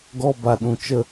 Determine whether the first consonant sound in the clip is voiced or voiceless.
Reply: voiced